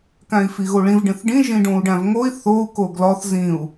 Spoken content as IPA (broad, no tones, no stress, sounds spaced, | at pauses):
k æ̃ i̯ f i ɣ o ɭ ĩ v ɖ ẽ θ ɖ ĩ ʒ ĩ ɖ õ u̯ ɖ æ̃ v ŋ o i̯ θ o u̯ k o ɡ l ɒ θ z ĩ u̯